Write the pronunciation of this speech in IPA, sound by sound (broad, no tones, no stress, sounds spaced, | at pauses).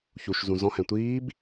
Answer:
ç u ʃ z ũ z ɔ̃ h ɛ̃ tʷ iː b